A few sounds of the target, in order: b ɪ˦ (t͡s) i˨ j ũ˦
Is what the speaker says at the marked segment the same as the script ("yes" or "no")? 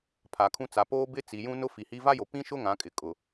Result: yes